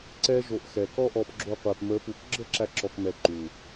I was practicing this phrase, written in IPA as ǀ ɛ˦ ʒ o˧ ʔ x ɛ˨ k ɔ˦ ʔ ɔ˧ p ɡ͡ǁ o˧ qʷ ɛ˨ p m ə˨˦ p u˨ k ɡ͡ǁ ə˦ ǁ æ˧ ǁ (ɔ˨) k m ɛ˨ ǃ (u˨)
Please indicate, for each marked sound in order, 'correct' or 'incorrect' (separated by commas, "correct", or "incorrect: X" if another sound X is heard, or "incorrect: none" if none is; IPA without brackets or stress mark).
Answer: correct, correct